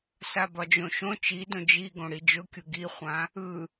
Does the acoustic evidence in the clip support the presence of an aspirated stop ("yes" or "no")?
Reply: no